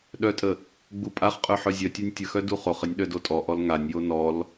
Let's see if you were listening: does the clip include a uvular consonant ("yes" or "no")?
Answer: yes